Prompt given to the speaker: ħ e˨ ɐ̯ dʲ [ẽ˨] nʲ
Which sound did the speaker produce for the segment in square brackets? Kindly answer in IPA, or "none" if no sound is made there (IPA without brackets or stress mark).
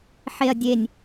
e˨